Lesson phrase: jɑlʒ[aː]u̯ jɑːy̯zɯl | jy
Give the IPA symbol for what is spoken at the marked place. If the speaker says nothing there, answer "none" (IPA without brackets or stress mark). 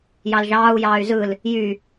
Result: ɑː